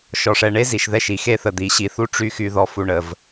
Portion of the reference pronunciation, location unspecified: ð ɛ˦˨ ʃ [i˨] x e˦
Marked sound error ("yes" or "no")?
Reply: no